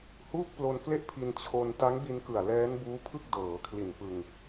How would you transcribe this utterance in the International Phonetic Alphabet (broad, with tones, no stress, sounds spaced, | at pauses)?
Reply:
h uː˥˩ k̚ p l o˧ n k l e˥˩ ʔ pʰ i˧ n t͡ɕʰ o˧ n t a˦˥ ŋ b i˧ n k ɯ˨˩ a̯ l ɛː˦˥ n b uː˦˥ pʰ ɯ˥˩ k̚ d ɤː˩˦ kʰ l i˨˩ n p ɯ˧ ŋ